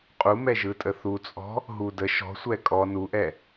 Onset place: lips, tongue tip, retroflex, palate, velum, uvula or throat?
uvula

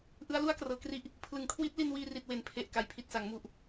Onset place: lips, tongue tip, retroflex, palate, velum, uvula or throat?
throat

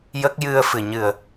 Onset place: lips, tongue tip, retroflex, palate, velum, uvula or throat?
palate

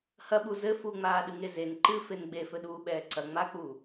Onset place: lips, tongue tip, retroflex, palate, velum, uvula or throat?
throat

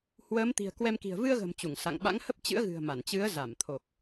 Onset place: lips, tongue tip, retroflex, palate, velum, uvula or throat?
throat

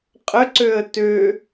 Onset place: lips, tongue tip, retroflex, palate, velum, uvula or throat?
uvula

